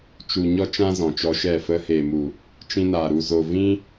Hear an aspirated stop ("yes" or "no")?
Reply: no